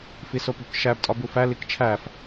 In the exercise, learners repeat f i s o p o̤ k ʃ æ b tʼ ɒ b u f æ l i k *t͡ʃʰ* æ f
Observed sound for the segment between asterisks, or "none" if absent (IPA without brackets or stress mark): t͡ʃʰ